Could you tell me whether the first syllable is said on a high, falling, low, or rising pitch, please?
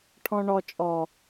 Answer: low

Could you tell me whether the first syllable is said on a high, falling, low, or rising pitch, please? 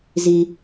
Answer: low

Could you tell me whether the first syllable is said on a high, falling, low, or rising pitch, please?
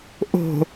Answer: low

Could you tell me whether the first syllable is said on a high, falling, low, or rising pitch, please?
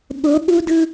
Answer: rising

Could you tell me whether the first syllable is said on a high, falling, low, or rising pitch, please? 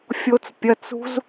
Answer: high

